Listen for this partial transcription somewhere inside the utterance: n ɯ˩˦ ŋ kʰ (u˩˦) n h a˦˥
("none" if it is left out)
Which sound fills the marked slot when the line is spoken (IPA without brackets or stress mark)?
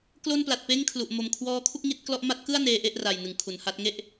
u˩˦